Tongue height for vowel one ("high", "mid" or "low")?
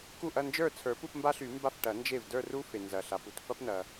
high